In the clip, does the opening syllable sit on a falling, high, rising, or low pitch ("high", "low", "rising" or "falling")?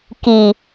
low